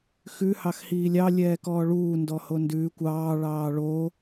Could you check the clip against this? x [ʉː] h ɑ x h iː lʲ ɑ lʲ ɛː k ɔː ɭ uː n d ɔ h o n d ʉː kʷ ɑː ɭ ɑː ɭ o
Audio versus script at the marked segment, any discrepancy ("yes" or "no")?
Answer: yes